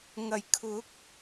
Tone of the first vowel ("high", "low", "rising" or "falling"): low